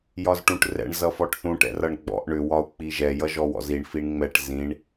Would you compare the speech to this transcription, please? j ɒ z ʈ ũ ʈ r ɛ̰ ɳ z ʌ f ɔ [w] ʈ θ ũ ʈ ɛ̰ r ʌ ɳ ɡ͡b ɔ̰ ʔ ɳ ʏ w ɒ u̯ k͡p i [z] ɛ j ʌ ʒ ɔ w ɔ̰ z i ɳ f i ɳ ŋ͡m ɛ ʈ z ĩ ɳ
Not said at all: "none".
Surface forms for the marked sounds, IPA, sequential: none, ʒ

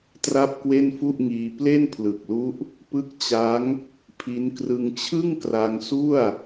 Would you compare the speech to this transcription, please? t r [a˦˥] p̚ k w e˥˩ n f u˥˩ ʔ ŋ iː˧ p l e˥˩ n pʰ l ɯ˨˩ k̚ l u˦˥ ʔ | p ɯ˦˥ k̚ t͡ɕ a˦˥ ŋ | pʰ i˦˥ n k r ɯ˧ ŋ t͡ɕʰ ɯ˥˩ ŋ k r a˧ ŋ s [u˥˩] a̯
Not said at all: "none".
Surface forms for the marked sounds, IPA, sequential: a˥˩, u˥˩

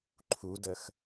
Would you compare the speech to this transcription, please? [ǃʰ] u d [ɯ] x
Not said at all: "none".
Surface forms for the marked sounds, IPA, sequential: ǃʰ, ə

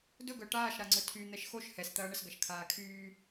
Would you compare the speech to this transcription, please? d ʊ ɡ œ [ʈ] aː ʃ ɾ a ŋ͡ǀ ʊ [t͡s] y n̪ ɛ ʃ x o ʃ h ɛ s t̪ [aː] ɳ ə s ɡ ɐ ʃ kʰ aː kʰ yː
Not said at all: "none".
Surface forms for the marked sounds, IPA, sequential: ʈ, tʰ, ɐː

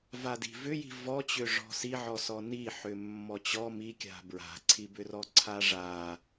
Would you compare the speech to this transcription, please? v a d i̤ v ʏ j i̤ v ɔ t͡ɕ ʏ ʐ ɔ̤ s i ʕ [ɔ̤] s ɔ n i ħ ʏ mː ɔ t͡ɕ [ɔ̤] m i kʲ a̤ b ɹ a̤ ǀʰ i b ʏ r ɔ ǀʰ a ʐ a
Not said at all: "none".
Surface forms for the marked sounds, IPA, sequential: ɔ, ɔ

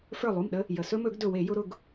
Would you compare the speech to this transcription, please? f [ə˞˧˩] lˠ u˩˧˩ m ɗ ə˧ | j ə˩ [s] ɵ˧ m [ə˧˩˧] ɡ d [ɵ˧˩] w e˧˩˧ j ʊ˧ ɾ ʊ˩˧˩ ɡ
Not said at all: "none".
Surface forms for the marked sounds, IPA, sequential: ə˞˧˩, s, ɵ˧˩˧, ɵ˧˩

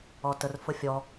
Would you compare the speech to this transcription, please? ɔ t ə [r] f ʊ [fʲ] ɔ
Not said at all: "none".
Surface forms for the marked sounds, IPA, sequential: r, fʲ

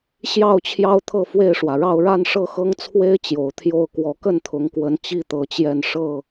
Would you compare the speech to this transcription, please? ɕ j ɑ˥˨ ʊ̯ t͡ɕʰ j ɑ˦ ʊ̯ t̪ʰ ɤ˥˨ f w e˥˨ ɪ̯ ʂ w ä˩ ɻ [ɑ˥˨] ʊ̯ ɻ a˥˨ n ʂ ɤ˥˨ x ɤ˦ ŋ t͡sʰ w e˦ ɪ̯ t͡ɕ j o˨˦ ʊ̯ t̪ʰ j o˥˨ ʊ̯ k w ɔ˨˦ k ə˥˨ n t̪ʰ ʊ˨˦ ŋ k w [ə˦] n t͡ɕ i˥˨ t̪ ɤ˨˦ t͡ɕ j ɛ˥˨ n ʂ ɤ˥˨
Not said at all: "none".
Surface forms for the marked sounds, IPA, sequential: ɑ˥˨, ə˨˦

